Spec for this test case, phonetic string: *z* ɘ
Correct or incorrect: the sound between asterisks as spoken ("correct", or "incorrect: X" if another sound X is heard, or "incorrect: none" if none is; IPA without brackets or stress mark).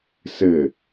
incorrect: s